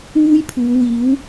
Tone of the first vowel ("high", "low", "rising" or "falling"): high